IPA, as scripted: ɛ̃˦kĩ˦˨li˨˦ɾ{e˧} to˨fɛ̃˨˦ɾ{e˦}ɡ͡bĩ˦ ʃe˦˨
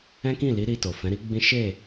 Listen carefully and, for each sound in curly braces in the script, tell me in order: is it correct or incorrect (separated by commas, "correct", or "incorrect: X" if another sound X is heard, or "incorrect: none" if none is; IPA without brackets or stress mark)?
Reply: incorrect: i˧, incorrect: i˦